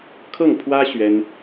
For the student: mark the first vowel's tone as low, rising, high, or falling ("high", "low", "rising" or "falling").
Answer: falling